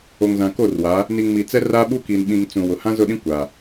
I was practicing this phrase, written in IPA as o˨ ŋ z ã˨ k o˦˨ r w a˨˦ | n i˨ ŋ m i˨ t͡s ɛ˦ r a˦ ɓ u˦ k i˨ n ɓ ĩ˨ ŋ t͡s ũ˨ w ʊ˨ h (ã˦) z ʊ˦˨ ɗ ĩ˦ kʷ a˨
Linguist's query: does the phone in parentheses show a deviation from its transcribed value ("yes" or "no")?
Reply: no